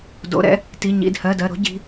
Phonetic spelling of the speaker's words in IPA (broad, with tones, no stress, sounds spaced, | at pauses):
d o̰˩˧˩ ɾ ɛ̰˩˧˩ | t i˩˧˩ ɲ ḭ˩˧˩ d h ɜ˩˧˩ d ɜ˩˧˩ ɾ o̤˥ ɟ i̤˩˧˩